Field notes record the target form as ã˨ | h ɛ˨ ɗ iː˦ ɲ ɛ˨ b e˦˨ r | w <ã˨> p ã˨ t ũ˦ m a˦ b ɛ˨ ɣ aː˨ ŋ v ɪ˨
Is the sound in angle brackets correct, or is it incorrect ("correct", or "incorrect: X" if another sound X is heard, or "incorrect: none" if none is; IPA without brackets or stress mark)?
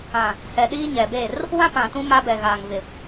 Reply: incorrect: ã˦